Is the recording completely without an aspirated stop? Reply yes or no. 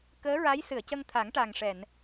no